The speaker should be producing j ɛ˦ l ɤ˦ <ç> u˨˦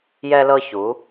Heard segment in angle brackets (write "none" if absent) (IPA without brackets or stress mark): ç